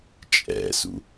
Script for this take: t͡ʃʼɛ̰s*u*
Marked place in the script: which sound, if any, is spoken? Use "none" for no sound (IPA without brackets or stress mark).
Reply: ṵ